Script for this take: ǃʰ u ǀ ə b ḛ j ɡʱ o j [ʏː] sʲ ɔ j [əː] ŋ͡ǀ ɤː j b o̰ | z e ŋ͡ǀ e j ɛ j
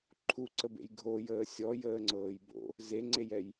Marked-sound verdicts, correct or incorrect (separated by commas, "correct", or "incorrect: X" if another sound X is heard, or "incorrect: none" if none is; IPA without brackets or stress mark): incorrect: əː, correct